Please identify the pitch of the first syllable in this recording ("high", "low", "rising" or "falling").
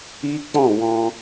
high